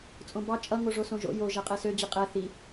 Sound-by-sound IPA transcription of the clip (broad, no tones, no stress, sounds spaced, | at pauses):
t͡sʼ õ b ɑ t͡ʃʼ ʌ ŋ o ʐ o s õ ʒ o̰ j o ʒ ɛ qʼ ɛ s ø d͡ʑ i qʼ ɛ θ i